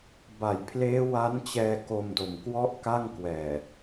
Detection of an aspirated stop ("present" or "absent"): present